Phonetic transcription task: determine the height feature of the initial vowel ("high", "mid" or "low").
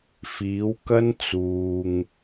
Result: high